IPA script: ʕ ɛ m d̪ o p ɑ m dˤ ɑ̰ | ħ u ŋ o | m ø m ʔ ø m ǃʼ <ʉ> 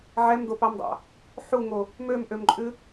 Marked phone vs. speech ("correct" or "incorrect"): correct